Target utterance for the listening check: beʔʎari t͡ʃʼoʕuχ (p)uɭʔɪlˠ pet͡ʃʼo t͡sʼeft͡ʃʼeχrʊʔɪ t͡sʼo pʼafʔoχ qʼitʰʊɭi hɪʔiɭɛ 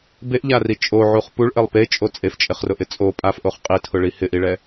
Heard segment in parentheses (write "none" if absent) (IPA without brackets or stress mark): p